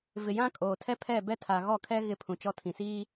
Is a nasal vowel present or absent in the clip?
present